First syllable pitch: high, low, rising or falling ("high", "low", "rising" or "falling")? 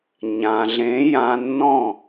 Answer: low